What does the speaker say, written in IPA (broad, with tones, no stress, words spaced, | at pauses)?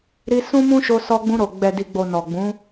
ɾi˧ sũ˦mũ˦ʃo˧ sɔ˧ɡ͡bũ˧ɾo˨ ɡ͡bɛ˨di˨ɡ͡bo˨ nɔ˨ɡ͡bũ˨˦